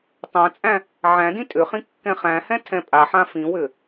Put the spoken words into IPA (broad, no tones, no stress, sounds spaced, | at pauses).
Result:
tˤ ã t͡sʼ æ̃ | ʕ æ̃ d ĩ tʼ ʏ χ ĩ kː ɛ̃ χ æ̃ h ɛ̃ tʰ ɛ̃ pʼ a ħ ã f ĩ w ʏ